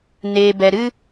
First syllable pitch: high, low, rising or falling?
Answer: low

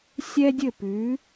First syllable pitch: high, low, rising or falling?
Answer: high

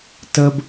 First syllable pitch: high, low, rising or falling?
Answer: high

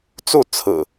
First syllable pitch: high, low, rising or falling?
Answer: falling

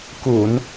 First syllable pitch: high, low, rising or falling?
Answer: low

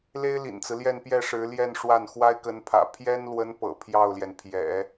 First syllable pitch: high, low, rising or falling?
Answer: high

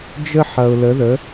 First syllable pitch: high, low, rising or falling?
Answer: high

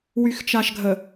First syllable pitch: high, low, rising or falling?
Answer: low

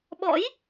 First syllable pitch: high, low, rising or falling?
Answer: rising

